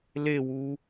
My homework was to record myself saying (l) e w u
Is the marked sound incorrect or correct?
correct